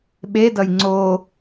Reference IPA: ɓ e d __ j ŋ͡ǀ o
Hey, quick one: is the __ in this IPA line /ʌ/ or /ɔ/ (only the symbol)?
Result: ʌ